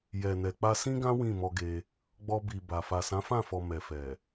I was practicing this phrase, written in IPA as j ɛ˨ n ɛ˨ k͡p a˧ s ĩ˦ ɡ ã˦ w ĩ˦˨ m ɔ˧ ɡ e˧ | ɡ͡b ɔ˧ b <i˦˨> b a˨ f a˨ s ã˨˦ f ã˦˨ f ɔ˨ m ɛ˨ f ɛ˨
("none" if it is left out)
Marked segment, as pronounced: i˨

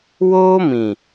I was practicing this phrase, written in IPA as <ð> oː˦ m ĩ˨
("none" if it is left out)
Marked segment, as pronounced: w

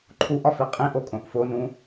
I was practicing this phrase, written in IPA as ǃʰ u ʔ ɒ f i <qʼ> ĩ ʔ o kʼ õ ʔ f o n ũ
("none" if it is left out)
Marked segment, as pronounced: qʼ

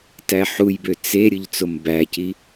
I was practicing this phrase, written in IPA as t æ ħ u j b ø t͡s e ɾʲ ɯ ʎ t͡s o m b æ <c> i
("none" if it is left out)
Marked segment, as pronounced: c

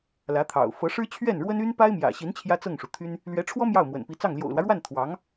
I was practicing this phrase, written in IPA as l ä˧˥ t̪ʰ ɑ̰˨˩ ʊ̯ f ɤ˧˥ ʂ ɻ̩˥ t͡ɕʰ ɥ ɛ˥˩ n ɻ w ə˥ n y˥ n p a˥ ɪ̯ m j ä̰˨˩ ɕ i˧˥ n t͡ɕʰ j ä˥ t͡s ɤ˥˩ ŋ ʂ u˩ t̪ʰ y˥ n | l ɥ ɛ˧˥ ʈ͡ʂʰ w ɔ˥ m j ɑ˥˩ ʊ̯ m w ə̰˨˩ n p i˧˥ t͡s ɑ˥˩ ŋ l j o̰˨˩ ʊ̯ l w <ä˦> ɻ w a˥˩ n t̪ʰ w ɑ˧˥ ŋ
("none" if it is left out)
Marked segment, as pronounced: ä˦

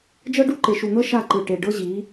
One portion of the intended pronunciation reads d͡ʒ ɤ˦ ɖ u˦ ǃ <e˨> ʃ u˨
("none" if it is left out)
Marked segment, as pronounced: e˨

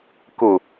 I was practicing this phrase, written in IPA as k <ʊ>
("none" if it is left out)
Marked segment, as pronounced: ʊ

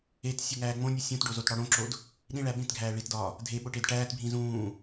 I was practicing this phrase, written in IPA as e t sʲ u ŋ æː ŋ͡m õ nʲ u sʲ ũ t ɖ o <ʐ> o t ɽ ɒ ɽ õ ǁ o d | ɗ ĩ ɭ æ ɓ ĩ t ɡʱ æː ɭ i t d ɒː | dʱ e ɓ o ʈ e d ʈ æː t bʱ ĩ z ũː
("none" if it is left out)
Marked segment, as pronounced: z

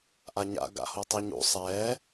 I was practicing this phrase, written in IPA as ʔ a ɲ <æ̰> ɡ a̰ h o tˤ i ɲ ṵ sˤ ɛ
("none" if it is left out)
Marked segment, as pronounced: a̰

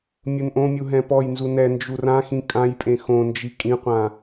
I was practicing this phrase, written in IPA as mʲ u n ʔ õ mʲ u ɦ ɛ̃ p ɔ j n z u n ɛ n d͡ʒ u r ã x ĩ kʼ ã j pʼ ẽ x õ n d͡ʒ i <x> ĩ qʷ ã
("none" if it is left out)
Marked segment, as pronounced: kʼ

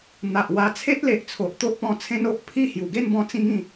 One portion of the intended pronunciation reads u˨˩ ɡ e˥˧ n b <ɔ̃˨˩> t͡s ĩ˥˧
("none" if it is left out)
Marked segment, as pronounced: ɔ̃˧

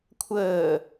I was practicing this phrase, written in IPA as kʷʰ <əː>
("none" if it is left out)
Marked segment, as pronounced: əː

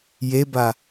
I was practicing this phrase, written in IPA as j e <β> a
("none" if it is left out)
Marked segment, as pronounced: b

